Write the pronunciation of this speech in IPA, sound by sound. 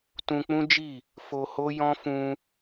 t ũ˧ k͡p ũ˦ d͡ʒ i˦˨ | f o˧ h o˦ j ɔ̃˦ f ũ˧

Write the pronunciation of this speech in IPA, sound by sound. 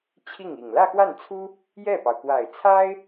t͡ɕʰ i˥˩ ŋ i˨˩ ŋ l ä˥˧ x w a˥˩ n t͡sʰ u˥ | j ɛ˥˩ p ɑ˩ ʊ̯ k w a˨˩ ɪ̯ t͡sʰ a˥ ɪ̯

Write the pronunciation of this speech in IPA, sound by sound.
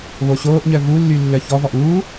β o ɕ oː ʔ ɲ œ v u lː y lː œ ç ɔ v ɔ ʔ uː

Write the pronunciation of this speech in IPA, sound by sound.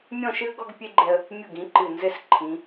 mʲ ɔ̃˥˧ ʃ ɨ˥ ə̯ ɡ ɔ˥ ɡ pʲ e˥ ɡ͡ǃ ɛ˧ ə̯ | mʲ u˧˩ ɡ ĩ˩˧ ǃ ɨ˧˩ n z ɘ˥˧ s ǃʰ ĩ˩˧

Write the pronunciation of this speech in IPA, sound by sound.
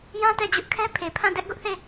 j ã˦ t ɛ˦˨ d͡ʑ ʊ˦ ʔ kʰ ɛ˦ pʰ e˨ pʰ ã˦˨ d ɛ˦ ʔ ɡ ʊ˦ ʔ θ e˦˨

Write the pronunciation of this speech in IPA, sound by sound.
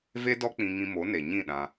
v e˦ d ɔ˦ k͡p ĩ˧ ŋ ĩ˧ m o˨˦ n e˨ ɲ ĩ˦˨ ɗ ã˧

